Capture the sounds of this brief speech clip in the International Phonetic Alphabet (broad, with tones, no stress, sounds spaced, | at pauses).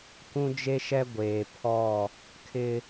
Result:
kʷ ũ˦ d͡ʒ e˦ ʃ ɛ˦ ɡʷ eː˨ pʰ ɔ˦˨ | kʰ ɪ˦